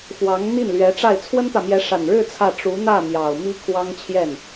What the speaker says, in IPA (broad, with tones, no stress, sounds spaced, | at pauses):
f w ɑ˧˥ ŋ n̪ i˥˩ n l ɥ ɛ˧˥ ʈ͡ʂ a˥˩ ɪ̯ t͡sʰ w ə˥ n t̪ ä˨ m j ɛ˧˥ ʂ a˨˩ n ɻ ɻ̩˥˧ t͡sʰ ä˥˩ ʈ͡ʂ u˧˥ n̪ ä˥˩ m j ɑ˨˩ ʊ̯ m i˥ kʰ w ɑ˥ ŋ t͡ɕʰ j ɛ˥˩ n